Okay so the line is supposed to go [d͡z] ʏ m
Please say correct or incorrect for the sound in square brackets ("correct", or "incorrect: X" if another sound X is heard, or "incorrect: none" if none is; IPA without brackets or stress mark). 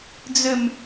correct